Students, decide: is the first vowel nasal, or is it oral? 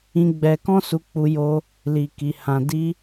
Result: nasal